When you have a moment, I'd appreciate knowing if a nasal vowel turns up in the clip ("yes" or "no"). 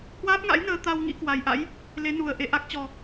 no